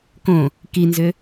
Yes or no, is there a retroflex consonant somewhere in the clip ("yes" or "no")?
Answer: no